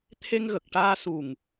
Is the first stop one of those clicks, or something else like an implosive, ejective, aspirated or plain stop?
aspirated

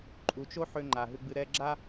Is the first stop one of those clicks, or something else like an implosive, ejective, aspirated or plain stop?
click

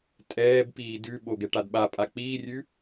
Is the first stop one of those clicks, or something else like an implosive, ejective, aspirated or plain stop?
ejective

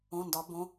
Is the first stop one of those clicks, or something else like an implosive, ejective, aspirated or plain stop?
plain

